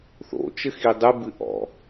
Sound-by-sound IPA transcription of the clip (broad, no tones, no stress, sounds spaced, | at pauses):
θ o̰ t͡ʃ ɘ x i dˤ ɨ b ɨ ʔ ɔ̰